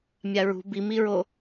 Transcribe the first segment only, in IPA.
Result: mʲ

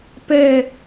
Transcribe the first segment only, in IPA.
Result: p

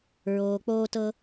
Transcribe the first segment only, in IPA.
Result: ɹ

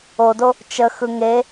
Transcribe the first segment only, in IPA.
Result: o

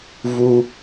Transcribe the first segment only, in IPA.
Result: v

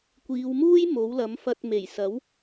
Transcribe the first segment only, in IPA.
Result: kʷ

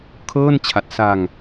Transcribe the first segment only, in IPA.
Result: kʰ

